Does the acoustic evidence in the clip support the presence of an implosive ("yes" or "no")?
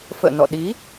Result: yes